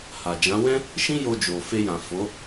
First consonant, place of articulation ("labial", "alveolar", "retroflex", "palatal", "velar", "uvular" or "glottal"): glottal